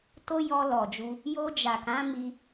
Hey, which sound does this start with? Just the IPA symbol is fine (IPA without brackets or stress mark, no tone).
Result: t